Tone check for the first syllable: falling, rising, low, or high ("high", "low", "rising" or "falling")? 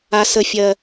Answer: high